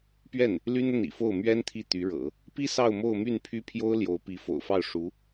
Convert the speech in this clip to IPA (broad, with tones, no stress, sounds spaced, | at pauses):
p ɥ ɛ˥˩ n | l y˥ n̪ ə˥˩ n ḭ˨˩ f o˥˩ ʊ̯ m ɥ ɛ˥ n t̪ʰ i˥˩ t̪ y˧˥ ɻ ɤ̰˨˩˦ | p i˥ s ɑ˥˧ ʊ̯ m o˥˧ ʊ̯ m y˥˩ n pʰ y˥ pʰ j o˥ ʊ̯ l j o˧˥ ʊ̯ p i˧˥ f o̰˨˩ ʊ̯ f ɑ˥˩ ʊ̯ ʂ u˧˥